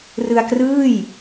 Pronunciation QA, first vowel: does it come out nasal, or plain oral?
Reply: oral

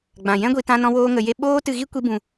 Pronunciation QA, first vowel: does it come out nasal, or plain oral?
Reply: nasal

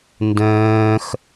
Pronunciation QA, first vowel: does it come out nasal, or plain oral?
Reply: nasal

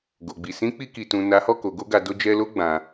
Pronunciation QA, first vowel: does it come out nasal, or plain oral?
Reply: oral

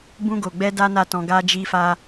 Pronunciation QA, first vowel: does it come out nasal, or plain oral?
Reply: nasal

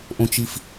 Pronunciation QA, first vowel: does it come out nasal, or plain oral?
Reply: nasal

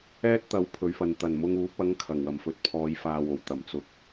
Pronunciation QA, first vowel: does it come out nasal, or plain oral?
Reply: oral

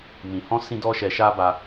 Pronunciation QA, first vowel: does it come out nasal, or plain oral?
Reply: nasal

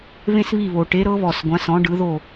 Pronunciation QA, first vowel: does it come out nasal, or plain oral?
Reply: nasal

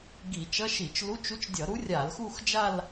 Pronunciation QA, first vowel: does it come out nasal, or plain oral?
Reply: oral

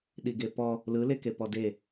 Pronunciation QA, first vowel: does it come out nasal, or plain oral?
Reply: oral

